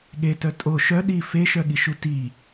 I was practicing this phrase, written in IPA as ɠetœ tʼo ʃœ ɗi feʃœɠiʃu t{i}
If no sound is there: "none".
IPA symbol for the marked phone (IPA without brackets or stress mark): i